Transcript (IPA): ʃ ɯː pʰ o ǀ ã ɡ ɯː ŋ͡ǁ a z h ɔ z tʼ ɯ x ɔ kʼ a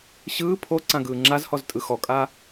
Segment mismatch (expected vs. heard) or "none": ʃ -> ɕ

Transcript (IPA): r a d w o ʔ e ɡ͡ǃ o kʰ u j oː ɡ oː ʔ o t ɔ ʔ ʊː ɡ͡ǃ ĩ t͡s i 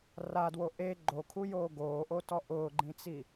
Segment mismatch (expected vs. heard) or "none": none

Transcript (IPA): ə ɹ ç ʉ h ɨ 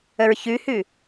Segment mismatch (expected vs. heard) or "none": ɨ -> ʉ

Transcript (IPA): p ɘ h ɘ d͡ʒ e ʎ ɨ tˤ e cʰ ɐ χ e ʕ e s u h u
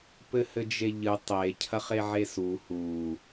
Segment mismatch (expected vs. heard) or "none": none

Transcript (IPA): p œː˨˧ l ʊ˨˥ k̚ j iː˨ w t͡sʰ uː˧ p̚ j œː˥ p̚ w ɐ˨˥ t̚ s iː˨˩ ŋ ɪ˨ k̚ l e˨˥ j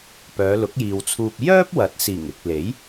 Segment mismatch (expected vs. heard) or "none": none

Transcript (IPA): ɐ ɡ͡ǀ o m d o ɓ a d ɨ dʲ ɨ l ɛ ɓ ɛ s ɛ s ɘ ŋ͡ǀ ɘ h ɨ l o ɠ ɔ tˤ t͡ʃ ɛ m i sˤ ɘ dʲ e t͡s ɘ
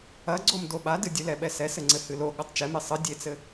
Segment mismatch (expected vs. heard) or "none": none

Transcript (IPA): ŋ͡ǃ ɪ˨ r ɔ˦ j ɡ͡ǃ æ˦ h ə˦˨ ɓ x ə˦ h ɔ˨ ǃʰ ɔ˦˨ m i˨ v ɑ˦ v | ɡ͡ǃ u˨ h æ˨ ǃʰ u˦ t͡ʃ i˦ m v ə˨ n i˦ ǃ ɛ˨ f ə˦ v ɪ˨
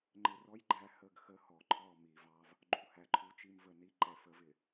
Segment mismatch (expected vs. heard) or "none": ɓ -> ɡ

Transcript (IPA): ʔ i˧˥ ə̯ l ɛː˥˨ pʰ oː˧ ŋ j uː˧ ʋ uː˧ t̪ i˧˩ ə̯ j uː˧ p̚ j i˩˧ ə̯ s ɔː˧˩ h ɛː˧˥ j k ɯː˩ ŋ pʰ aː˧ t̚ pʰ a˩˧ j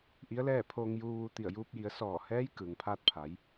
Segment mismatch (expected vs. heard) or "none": none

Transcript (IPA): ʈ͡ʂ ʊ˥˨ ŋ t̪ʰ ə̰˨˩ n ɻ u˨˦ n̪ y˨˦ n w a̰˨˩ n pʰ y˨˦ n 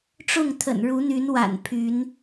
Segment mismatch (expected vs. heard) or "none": none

